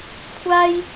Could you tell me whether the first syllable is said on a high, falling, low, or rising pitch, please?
high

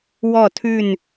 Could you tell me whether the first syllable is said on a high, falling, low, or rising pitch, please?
falling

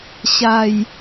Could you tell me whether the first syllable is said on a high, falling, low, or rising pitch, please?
low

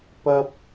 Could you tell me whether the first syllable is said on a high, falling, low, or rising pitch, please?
high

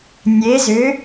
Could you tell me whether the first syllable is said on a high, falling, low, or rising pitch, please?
rising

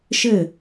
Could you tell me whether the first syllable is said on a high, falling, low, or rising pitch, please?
falling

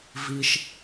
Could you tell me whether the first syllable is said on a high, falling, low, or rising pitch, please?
low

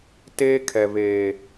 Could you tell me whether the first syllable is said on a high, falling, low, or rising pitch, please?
high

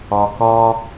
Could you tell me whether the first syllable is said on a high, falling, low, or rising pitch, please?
low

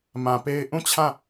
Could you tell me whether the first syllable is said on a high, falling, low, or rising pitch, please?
low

